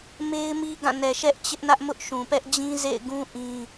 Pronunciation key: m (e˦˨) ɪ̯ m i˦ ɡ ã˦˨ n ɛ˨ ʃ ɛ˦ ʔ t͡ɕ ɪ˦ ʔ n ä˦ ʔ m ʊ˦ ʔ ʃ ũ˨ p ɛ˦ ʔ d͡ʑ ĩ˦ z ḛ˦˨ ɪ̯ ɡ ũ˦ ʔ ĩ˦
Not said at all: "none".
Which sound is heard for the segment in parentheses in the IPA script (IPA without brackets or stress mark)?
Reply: e˦